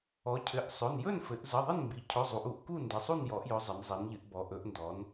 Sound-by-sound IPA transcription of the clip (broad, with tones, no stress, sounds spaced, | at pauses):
ɔ˩˧ cʰ ɘ˩˧˩ ʔ sˤ ɵ˩˧˩ n j ɵ˥˨ n f ɘ˩˧ ʔ z ə˩˧˩ ðˤ ə˥˨ n m b i˩˧ cʰ ɵ˩˧˩ zˤ u˩˧ ʔ u˩˧ ʔ k u˥˨ n d ɘ˩˧ sˤ u˥˨ n j ɔ˩˧ ʔ j ɵ˩˧ zˤ ɘ˩˧ n zˤ i˩˧ n ʎ ɘ˩˧ ʔ b ɔ˩˧ ʔ ɵ˩˧ ʔ n d ɔ˩˧ n